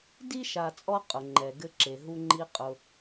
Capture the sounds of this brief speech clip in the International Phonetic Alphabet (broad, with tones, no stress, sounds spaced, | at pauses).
d i˥ ʃ a˨ t͡sʼ ɔ˦ qʼ ʊ˩ ŋ͡ǃ ɛ˩ ɡ ɘ˨ ǁ e˩ ɦ u˨ ŋ͡ǃ i˨ qʼ ʊ˨